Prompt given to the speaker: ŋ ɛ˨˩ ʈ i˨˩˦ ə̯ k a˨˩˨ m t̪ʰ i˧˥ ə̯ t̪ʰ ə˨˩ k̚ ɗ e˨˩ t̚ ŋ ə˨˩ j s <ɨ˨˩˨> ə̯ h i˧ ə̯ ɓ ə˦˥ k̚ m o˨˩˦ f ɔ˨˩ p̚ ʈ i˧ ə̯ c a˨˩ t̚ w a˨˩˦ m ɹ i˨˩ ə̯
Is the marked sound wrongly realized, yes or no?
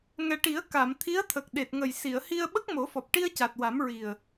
yes